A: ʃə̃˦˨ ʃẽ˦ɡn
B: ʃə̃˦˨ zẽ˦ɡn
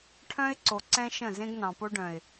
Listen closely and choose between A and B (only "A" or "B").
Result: B